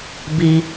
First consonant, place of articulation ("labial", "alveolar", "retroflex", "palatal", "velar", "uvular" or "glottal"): labial